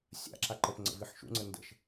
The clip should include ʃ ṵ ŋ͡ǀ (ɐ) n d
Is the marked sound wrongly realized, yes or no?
yes